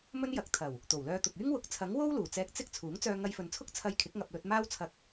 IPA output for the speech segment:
mɵ˥njɐ˨˥k̚ t̪ʰɐ˨˩w | t̪o˨˩wlœː˧t̪ʊ˨k̚ yː˥ŋwʊ˨˥k̚t͡sʰɐ˨˥ŋwo˥w luː˨˩t͡sɛː˧k̚ t͡sɪ˥k̚ t͡sʰuː˨˥ŋt͡sœː˧ ŋɐ˧jfɵ˨nt͡sʰʊ˥k̚ t͡sʰɐ˧jkʰɪ˨˥k̚ŋɐ˨p̚lɵ˧t̚ maː˥wt͡sʰɐ˧k̚

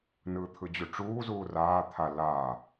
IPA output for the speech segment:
nɯːt̪ʰɯd͡ʑuʈ͡ʂuː zuːraː t̪ʰa lːaː

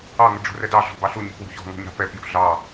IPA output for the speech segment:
ɑŋə ɖ͡ʐṳrɛdɑɮɔ̤ bɑɬuɲṳ pwṳçɔ̤ŋɔ̤ɲ ɑ̤pɛpjṳ ɮɑ

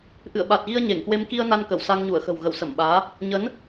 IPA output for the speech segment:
ʔɨ̰˧˨ə̯ɓa˨˩t̚ɣi˧ə̯ ɲe˧˩ŋkwe˧m ki˧ə̯ na˧nkə˧˩w sa˧ŋɲu˧˩ə̯xə̤˨˩w ɣə˧˩wsə˧˩mɓaː˨˦ | ɲə˨˦n

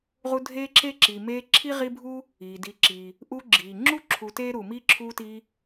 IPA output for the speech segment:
ʁu˦ dʱeː˥ǁe˥ ǁi˨meː˦ ǁʰi˥ʁi˦bʱu˥ | iː˩di˨ ǁi˩ | ʔuː˦ɡ͡ǁiː˩ ŋ͡ǁu˥ǁʰu˨ teː˥ɾuː˩miː˥ ǁʰuː˦tiː˦

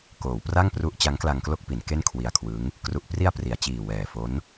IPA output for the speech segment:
koː˩˦wpra˥˩ŋpru˦˥ʔ t͡ɕa˦˥ŋkla˧ŋklo˥˩k̚pi˩˦n ke˥˩nkʰwi˧a̯kʰwɯ˦˥ŋ | kru˨˩ʔpri˧a̯ pri˩˦a̯t͡ɕiː˨˩wɛː˨˩fo˦˥n

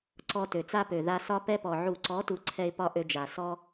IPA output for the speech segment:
ǀɔ˧tø˨t͡sa˦pø˨ ða˧sɒ˦pɛ˦pɔ˨ ʕu˨ǀɔ˨˦tu˨ ǀʰɛ˧ɪ̯ pɒ˦ʔø˧d͡ʒa˨ sɔ˦

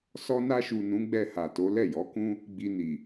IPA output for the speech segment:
sɔ˧na˧ʃu˨ nũ˨˦ɡ͡bɛ˧ha˨to˨˦ lɛ˦˨jɔ˨˦kũ˦ | ɡ͡bi˧ni˨

